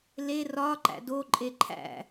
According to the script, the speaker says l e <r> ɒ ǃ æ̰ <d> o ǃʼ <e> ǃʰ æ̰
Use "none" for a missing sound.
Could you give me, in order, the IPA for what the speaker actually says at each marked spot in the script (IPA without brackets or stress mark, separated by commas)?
r, d, e